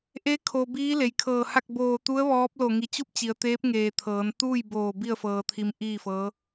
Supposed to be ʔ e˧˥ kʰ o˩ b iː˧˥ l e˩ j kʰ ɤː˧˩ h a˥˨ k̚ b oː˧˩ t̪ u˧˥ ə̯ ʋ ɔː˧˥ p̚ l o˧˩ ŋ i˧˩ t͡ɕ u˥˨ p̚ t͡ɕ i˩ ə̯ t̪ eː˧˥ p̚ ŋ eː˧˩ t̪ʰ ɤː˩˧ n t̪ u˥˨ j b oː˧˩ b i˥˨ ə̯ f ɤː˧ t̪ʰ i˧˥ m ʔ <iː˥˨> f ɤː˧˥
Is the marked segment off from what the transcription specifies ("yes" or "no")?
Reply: no